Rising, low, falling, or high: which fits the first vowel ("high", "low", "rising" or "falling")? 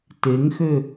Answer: rising